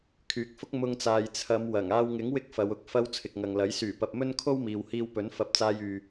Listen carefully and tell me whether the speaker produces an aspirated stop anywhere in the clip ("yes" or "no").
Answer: yes